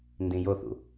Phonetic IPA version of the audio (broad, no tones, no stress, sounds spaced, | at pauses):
n d ĩ j o θ ṵ